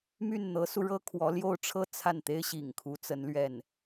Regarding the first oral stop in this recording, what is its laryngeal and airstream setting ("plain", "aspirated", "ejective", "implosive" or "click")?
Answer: aspirated